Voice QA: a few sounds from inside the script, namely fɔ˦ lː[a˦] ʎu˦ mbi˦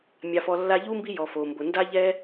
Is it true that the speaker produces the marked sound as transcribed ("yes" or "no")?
yes